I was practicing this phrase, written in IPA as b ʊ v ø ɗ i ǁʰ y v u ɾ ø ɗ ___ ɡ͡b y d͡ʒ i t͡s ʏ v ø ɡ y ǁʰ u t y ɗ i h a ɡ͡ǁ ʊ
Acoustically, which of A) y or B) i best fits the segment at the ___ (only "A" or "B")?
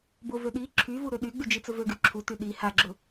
A